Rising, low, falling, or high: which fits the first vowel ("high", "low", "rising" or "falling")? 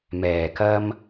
low